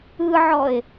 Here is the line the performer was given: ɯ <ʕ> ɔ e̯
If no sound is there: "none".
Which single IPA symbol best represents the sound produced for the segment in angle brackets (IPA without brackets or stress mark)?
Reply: ʕ